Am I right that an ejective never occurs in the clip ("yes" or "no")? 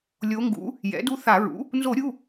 yes